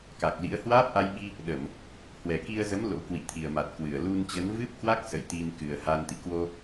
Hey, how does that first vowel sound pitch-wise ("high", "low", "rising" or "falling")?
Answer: low